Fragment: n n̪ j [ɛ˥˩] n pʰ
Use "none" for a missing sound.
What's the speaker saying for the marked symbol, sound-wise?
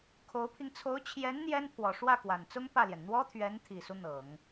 ɛ˥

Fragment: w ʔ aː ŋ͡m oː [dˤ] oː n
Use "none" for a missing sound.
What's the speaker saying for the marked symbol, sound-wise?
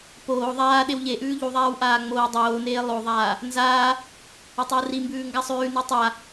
dˤ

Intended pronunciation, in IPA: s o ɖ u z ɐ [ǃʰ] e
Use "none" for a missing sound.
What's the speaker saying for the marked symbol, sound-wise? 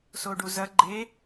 ɡ͡ǃ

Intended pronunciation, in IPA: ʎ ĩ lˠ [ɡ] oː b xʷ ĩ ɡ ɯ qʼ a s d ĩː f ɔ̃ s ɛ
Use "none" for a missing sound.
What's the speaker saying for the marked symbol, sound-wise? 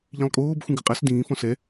kʼ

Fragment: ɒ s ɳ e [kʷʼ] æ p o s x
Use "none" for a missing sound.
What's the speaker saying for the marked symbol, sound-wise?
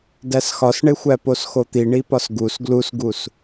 xʷ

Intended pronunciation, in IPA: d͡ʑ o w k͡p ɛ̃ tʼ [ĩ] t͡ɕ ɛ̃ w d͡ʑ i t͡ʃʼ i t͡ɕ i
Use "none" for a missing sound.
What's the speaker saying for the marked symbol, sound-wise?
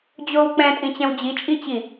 ĩ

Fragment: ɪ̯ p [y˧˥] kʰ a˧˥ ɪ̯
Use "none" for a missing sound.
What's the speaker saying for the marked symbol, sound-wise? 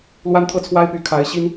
y˧˥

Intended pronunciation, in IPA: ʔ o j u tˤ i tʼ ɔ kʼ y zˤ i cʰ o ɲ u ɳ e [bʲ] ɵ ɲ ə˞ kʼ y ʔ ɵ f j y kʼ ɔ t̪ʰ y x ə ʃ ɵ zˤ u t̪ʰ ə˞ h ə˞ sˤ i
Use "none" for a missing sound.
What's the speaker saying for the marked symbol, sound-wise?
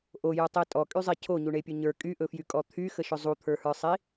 pʲ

